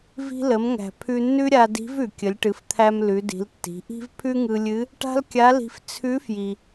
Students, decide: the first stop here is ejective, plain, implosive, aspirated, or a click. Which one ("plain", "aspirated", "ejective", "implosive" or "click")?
aspirated